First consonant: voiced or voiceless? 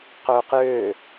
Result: voiceless